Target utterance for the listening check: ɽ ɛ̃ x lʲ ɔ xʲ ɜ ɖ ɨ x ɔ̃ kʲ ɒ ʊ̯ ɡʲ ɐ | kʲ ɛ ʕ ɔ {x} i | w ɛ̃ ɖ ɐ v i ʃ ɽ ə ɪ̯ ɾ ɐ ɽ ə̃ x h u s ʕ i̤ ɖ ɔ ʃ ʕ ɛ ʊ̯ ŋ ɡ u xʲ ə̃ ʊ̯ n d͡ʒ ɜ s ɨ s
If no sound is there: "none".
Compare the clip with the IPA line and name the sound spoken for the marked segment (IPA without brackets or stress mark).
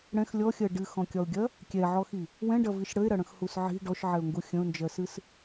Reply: x